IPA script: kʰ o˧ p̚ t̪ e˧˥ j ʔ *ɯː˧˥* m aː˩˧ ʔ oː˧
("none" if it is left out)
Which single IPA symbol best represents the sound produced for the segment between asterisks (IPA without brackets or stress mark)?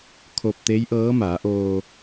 ɤː˧˥